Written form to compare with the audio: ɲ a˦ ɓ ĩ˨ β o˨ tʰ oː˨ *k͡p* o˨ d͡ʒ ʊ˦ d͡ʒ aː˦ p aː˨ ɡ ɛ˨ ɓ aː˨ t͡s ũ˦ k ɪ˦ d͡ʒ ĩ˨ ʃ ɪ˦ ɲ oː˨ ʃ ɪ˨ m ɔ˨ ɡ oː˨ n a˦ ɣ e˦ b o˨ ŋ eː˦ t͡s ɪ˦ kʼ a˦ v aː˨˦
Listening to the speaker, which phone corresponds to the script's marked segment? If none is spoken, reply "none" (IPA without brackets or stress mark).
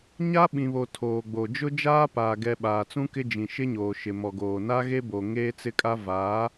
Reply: ɡ͡b